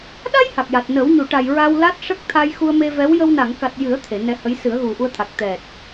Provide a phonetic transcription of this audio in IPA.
ɗa˧j ha˨˩k̚ja˨˩t̚ nə˨˩˦wɲu˨˩˨ʈa˨˩j ɹa˧wla˦˥t̚ʂə˦˥k̚t̪ʰa˧j xu˧ə̯me˧vɛ˧˥w jə˧wna˨˩˨ŋka˨˩t̚ jɨ˨˩˦ə̯ t̪ʰe˨˩˨nɛ˧hə˧˥j sɨ˨˩˦ə̯ɣu˨˩ʔu˧ə̯t̪ʰa˨˩k̚ t̪ɛ˨˩t̚

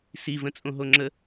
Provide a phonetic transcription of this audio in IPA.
sivə̃t͡sʼõɦo ŋ͡ǁə

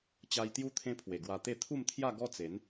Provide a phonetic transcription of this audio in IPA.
t͡ɕa˧jt̪ju˦ t̪ʰẽ˦pʰwe˨˩ ɡwa˧t̪e˥˧ t̪ʰu˥˧mt̪ʰja˥˧ ɡɔ˦t͡se˨˦n

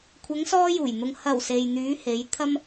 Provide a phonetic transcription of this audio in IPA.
kʷʰɐ˨˧ŋsɔː˧juː˨˩jn̪ʊ˨ŋ hɐ˨˩w se˨jn̪yː˨˧he˨˧j t̪ʰɐ˥m

